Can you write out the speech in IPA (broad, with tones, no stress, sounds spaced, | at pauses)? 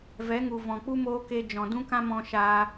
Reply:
v ɛ˨˦ ŋ u˨ v ɔ̃˨ k͡p u˦ m oː˧ k e˧ d͡ʒ ɔ̃˨ d ũ˦ k ã˦ m ɔ̃˧ ʃ aː˧